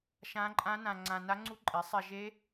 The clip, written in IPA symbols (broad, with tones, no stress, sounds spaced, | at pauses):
ʃ ã˦˥ ǃʼ ã˦˥ n ã˧ ŋ͡ǀ ã˧ n a˦˥ ŋ͡ǀ u˦˥ ǃʼ e˨˥ sˤ ɛ˧ ʒ e˦˥